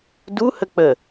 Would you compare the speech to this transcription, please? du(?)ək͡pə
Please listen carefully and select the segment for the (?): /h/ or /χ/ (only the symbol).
h